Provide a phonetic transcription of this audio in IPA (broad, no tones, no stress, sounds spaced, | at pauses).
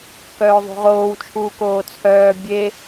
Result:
k œː ðˤ ṳ ʁ oː w t͡ʃʰ uː k oː t͡sʰ œː bʲ e